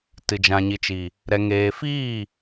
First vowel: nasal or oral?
oral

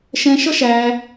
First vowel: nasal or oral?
nasal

